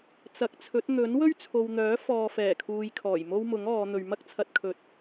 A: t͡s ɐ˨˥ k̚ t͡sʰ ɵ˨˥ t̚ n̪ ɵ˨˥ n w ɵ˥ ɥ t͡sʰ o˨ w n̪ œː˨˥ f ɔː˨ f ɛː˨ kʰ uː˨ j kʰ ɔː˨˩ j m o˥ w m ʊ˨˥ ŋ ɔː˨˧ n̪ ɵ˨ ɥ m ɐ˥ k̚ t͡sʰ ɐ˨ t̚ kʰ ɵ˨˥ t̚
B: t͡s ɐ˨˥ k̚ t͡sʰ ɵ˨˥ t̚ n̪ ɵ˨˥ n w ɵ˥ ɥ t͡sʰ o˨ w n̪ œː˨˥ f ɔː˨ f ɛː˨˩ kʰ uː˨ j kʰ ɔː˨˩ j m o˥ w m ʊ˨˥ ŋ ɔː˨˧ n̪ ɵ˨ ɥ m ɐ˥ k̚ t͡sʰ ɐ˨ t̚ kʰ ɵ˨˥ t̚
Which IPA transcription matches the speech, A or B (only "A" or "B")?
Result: B